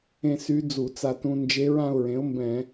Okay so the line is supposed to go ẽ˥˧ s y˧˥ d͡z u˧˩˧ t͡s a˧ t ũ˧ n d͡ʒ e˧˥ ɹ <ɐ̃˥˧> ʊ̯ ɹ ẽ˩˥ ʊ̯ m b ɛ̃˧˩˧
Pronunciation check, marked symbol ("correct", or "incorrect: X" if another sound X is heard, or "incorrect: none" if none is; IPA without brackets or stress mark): incorrect: ã˥˧